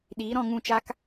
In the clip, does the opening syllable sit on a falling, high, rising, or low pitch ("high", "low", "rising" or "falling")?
rising